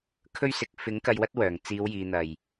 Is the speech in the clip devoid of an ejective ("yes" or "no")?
yes